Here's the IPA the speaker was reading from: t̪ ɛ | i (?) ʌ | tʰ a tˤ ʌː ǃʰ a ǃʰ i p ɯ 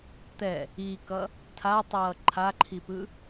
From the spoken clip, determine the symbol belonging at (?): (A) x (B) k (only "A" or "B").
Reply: B